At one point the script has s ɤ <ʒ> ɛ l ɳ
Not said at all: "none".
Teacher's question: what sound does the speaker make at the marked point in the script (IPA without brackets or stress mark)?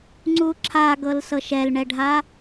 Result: ʃ